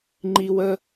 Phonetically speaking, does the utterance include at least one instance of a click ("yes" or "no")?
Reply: yes